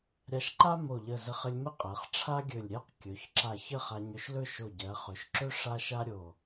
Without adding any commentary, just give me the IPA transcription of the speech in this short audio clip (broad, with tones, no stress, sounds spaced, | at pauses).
ɾʲ a˧ ʃ ǃ a˥ m o˧˩ ʎ ə˧˩ z ə˧ χ ə˧ lʲ m ə˥ qʼ ɜ˩˧ χ ʈ͡ʂʰ a˥ ɡʲ ɵ˧˩ lʲ ɾʲ ɜ˥˧ q kʲ ɵ˩˧ ç ǁ a˧˩ ç ə˥˧ χ a˧ ɲ ɵ˧ ʃ l ɵ˥˧ ʃ o˧˩ ɟ ɜ˩˧ χ ɵ˩˧ ʃ ǁ ɵ˥ ʂ a˥ ʃ a˥ ɾʲ o˧˩